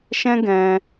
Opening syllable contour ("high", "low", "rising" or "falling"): high